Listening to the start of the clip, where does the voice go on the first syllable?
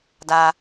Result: low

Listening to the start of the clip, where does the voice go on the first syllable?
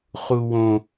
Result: low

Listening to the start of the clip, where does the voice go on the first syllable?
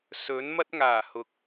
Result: rising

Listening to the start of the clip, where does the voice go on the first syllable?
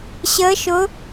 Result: rising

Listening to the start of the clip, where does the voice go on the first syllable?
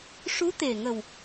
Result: rising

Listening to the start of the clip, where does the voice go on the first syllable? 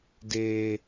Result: low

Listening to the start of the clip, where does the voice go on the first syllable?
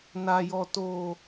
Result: low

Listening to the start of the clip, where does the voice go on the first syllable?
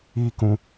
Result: high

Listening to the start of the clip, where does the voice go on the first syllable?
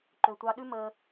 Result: low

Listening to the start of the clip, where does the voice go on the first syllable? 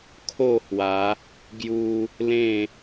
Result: falling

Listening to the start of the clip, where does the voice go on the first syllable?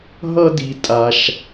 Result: high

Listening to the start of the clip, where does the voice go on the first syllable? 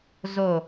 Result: low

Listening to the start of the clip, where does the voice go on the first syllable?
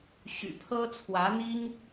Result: low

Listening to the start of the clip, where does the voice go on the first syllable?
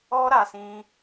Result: high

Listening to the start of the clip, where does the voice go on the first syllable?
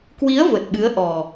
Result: rising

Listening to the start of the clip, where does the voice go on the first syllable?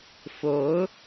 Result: rising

